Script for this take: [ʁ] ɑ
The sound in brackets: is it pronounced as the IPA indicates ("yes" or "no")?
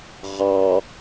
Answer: yes